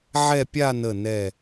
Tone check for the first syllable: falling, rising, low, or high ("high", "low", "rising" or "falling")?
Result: falling